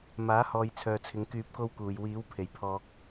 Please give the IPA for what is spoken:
m aː˨˥ h ɔː˨ j t͡sʰ œː˨ t͡sʰ ɪ˨˧ ŋ k yː˧ p̚ k o˥ w k uː˨ j w iː˨˥ w pʰ e˨˩ j pʰ ɔː˨ k̚

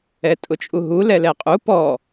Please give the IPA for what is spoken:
ɛ tʼ ʊ t͡ʃʼ u ɦ u l ɛ l ɛ qʼ u p ɔ

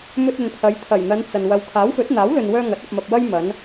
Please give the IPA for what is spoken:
m ɵ˧ t̚ ɵ˨ n pʰ ɐ˨˧ j t̪ʰ ɐ˨˩ j n̪ ɐ˨˧ n t͡s ɐ˨ n w ɐ˨ w kʰ aː˨˥ w f ɵ˨˥ t̚ n̪ aː˨˥ w l ɵ˨ n w œː˧ ŋ ɐ˨˥ t̚ ɐ˧ p̚ m ɐ˧ p̚ w ɐ˥ j m ɐ˨˧ n

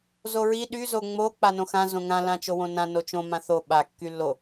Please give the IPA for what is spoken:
z o ɹ i ɗ y z o ŋ͡m o k͡p a n õ x ã z õ ŋ ã l ã t͡ʃ o w õ n ã n o t͡ʃ õ m ã θ o ɓ a kː y lː o

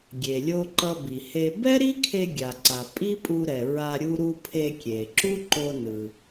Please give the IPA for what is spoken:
ɡʲ e˩ lʲ o˧ ǃ ʌ˧ b i˩ h e˧ b ɛ˥ ɾ i˥ kʰ e˧ ɡʲ a˩ ǀ a˩ pʼ i˥ pʼ u˧ ɾ ɛ˩ ɹ a˧ ɾʲ u˧ ɾ u˧ pʰ e˧ kʲ e˩ ǁ u˥ ǃ o˧ n ɯ˩

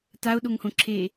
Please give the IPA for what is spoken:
t a o̯ ɗ o ŋ h õ ǁʰ e

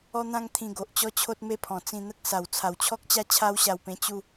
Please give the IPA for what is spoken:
ɔ˦ n̪ ã˦ ŋ t̪ʰ ĩ˧ ɡ o˨ ʔ t͡ɕ ɔ˥˧ t͡ɕʰ o˦ t̚ m e˥˧ pʰ ɔ̃˨˩ t͡s ĩ˧ n̪ ə˦ k̚ s a˨˩ w t͡sʰ a˨˩ w t͡ɕʰ ɔ˦ k̚ t͡ɕ a˦ t͡ɕʰ a˦ w ɕ a˧ w p ẽ˧ t͡ɕ u˥˧

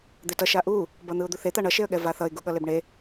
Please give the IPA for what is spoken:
d̪ e t ʌ ʃ a ʔ u | b ʌ n̪ ɯ ʊ̯ d̪ u θ e t̪ a ɳ ʌ ʃ e ə̯ ɠ ɛ v a θ ʌ ɪ̯ ɡ u ɠ ʌ l e b ɳ e

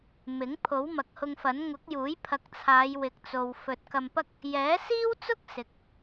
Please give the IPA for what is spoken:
m ɪ˨˥ ŋ pʰ o˨˥ w m ɐ˨ k̚ h ʊ˧ ŋ f ɐ˨˥ n ŋ ʊ˨˥ k̚ j uː˨˥ j pʰ ɐ˨˥ k̚ t͡sʰ aː˨˧ j w ɪ˨˥ k̚ t͡s o˨ w f ɵ˨ t̚ k ɐ˧ m p ɐ˥ k̚ | j ɛː˨˥ s iː˥ w t͡s ʊ˥ k̚ s ɪ˨˥ k̚

